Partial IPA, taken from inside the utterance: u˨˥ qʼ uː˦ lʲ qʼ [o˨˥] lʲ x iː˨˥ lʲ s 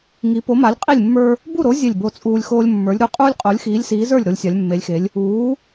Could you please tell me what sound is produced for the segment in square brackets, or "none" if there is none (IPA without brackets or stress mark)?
o˨˥